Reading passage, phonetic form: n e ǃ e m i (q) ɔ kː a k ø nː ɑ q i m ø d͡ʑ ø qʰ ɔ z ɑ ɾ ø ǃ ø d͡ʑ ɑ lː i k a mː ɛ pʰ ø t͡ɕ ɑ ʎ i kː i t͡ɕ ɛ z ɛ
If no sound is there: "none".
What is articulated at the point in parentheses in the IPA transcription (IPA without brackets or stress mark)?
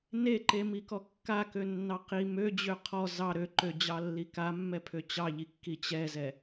k